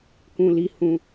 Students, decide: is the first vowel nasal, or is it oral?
nasal